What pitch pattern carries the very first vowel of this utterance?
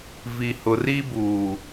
low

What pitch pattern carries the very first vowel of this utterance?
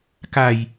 low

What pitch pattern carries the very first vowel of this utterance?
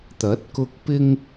rising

